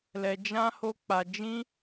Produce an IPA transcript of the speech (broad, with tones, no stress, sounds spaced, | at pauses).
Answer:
l ɛ˧ d͡ʒ ã˦ h o˦ k͡p a˧ d͡ʒ ĩ˦